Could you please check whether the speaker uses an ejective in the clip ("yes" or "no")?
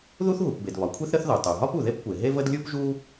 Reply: no